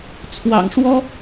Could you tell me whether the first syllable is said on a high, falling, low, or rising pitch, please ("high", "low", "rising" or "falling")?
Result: low